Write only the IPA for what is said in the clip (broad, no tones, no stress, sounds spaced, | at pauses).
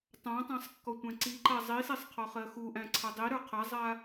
tˤ ã tˤ æ̃ sˤ kː ɔ tʷ æ̃ ǀ i ǃ a zˤ i s i sˤ qʰ ɔ χ ɜ x u ʔ æ̃ ǀʰ a dˤ i ɾ ə˞ qʰ a zˤ a